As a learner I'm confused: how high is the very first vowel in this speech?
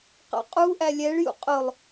low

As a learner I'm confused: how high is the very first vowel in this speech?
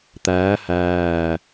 low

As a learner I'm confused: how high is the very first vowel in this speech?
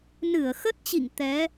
high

